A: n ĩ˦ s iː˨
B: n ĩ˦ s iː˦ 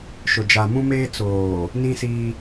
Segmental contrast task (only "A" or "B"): B